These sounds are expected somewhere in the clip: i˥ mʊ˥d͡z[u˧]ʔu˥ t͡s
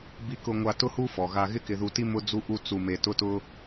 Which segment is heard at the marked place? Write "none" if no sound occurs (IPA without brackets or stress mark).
u˥